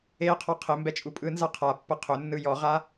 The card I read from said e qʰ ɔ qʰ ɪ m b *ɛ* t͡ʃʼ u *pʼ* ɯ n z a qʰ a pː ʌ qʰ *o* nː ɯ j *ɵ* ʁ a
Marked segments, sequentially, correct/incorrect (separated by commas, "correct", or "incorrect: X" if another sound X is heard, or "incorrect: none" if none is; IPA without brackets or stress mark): correct, correct, incorrect: ɵ, incorrect: ɔ